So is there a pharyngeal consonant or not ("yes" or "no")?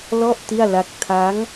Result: no